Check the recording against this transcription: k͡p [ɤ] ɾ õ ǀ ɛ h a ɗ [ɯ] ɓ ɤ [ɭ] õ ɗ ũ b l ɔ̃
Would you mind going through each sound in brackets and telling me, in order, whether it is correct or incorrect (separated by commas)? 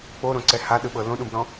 incorrect, correct, incorrect